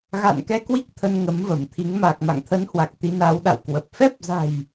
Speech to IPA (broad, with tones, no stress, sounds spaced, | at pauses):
ɣ a̰˧˨ n k ɛ˧ k w i˦˥ k̚ t̪ʰ ə˧ n ŋ ə˨˦ m v ə˧˩ m t̪ʰ i˨˦ ŋ m aː˨˩ k̚ m a̰˧˨ ŋ t̪ʰ ə˨˦ n h w a˨˩ k̚ t̪ i˨˦ n a˨˦ w ɗ a̰˧˨ w k w ə˨˩ p̚ f ɛ˦˥ p̚ z a̤˨˩ j